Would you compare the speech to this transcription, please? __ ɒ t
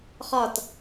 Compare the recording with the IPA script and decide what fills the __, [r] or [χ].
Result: χ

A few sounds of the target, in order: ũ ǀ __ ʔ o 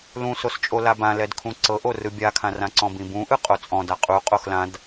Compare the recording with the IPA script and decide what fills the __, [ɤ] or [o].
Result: ɤ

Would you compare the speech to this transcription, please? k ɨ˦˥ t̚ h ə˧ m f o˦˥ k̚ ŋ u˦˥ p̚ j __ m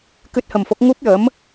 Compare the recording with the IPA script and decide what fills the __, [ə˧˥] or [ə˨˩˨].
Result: ə˧˥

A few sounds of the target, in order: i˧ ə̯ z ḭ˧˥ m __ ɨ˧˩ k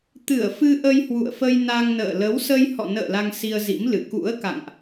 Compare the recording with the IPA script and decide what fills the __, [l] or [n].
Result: l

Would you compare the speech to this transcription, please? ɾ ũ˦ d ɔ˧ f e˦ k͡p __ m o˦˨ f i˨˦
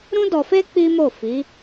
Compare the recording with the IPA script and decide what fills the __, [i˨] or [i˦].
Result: i˦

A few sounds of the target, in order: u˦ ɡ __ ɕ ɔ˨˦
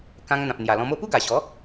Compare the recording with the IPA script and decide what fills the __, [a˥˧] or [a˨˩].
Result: a˨˩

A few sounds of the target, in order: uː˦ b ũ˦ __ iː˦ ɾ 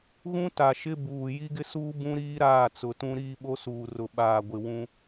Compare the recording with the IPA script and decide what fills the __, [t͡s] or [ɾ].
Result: ɾ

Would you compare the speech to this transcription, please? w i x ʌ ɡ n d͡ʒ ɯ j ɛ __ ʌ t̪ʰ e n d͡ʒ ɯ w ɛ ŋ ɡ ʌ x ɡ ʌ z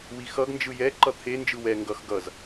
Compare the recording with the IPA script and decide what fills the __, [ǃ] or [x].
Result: ǃ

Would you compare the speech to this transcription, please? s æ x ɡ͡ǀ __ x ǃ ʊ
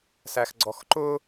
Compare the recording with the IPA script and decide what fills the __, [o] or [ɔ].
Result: ɔ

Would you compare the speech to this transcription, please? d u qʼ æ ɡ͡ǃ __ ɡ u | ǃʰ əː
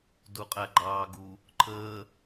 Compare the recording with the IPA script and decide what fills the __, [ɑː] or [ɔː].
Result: ɑː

